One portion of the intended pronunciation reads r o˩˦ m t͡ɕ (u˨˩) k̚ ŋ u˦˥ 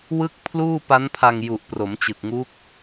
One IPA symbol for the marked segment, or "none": ɯ˨˩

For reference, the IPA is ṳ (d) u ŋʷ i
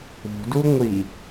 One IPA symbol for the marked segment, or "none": d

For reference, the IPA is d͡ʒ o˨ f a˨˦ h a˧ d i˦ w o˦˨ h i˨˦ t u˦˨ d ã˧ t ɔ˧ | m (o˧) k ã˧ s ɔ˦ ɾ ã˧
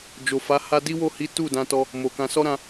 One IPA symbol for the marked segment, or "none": o˨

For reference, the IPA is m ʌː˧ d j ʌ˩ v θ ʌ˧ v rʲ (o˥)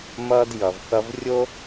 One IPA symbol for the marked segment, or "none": o˥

